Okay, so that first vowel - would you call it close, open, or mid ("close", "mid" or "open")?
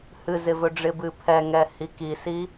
close